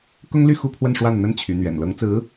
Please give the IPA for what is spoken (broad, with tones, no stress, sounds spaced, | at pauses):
k ʊ˥ ŋ l y˥˧ x u˥˧ pʰ w ə˥˧ n ʂ w a˥˩ n n̪ ə˥ n t͡ɕʰ y˧˥ n̪ ɥ ɛ̰˨˩ n l ɤ˧˥ ŋ t͡s ɹ̩˧˥